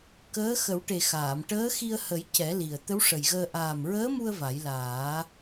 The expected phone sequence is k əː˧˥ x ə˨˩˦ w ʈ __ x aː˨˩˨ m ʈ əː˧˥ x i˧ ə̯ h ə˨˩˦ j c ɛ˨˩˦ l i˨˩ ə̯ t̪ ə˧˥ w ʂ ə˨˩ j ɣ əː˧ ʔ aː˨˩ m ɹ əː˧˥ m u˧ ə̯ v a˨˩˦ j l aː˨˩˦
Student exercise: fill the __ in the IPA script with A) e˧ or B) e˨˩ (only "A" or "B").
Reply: B